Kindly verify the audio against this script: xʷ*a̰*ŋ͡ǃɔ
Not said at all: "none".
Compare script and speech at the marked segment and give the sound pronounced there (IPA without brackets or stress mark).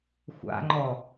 a̰